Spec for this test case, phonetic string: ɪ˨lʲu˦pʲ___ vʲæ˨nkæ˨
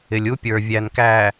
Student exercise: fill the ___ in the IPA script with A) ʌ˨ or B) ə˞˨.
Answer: B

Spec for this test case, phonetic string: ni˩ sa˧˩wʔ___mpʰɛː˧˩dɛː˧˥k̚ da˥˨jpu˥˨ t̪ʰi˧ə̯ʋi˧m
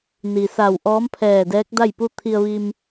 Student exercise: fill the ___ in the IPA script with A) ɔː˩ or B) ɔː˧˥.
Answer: B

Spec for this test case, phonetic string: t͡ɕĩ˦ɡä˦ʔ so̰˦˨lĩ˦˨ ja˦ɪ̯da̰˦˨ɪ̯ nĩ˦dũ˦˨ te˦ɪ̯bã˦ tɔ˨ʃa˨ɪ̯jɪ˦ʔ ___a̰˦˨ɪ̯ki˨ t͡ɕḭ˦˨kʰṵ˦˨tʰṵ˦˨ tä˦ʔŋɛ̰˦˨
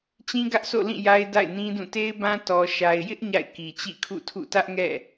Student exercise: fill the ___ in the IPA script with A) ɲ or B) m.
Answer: A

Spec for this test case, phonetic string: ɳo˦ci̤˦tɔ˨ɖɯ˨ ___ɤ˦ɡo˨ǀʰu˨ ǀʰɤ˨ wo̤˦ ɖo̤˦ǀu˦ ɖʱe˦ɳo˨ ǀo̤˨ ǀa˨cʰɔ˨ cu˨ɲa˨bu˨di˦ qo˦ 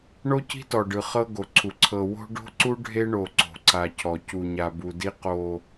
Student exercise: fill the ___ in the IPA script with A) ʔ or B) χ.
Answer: B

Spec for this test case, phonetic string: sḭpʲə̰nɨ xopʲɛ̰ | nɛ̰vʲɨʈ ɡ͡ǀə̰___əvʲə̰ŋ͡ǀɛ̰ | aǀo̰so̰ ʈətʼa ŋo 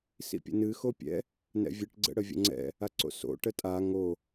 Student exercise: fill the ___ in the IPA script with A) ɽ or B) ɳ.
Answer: A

